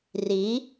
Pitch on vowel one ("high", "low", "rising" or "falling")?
rising